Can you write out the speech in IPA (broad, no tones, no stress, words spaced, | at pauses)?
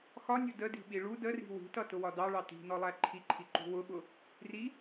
xɒnʲʊ dədi̤ɓi ɭu dəri̤ wi̤tʌ tʊwɒdɑɭɑ ti̤nɔlˠæ ǃʰiǃʰiǃṳ wʊɓʊ | ri